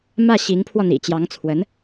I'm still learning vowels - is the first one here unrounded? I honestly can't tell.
yes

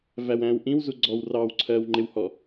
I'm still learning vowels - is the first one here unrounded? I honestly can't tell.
yes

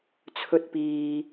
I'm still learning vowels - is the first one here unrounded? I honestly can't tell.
no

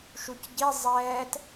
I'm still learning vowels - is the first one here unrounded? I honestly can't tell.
no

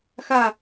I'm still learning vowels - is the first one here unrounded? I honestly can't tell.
yes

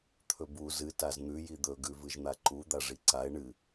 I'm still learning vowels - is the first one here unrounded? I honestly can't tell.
no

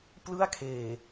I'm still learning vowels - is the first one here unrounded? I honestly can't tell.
yes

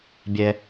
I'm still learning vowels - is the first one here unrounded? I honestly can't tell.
yes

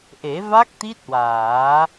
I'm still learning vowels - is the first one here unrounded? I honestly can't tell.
yes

